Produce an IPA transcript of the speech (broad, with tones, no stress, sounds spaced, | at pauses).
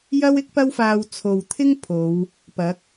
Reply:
j ɐ˥ w ɪ˥ k̚ p ɐ˥ w f aː˧ w t͡sʰ o˨ w t̪ʰ ɪ˥ ŋ pʰ o˨˧ w | p ɐ˨˥ k̚